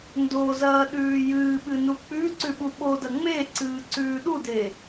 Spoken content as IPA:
n d o z ɐː ɗ ʉː j ɨː ɓ ɨ n u k͡p ʉ ǀ ʉ ɓ u ɓ o d ɐ ŋ͡m e ǀ ɨː ǀ ʉː ɗ u d e

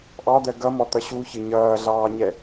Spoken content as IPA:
ʔ ɑ d̪ ɜ ɡ ʌ m ɔ t̪ ʌ ɕ u ç ɪ ɲ ʌː ɮ ɑː ɲ ɛ

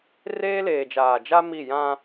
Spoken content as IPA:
r eː˦ l eː˨ d͡ʒ aː˨ d͡ʒ a˦ m i˦˨ j ã˦

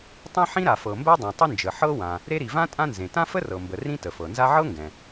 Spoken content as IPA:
tˤ ẽ˥ ħ ĩ˥ ɾ a˩ f ɤ˩ m b ɛ˥ dˤ ɛ̃˩ tˤ ə˥ n d͡ʒ ə˩ ħ ɤ˥ w ã˩ | ɾ e˥ ɾ i˩ v ã˥ tʼ ã˥ n z ẽ˩ t ã˥ f ə˥ r ɤ˩ m b ə˩ r ĩ˥ t ə˩ f ɤ˩ n z a˥ ʕ ɤ˥ ŋ ɡ ɛ̃˩

